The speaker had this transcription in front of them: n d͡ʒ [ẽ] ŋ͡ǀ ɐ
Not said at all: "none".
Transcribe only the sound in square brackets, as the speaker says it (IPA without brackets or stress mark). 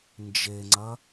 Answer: e